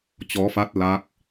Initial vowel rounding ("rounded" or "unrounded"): rounded